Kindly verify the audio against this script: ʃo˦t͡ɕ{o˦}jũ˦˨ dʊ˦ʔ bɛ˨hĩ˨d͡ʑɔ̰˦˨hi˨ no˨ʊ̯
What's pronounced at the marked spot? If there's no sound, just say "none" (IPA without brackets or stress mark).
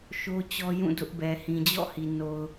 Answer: ɔ˦